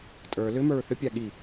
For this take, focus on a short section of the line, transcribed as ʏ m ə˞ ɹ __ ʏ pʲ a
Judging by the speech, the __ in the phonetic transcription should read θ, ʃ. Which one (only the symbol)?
θ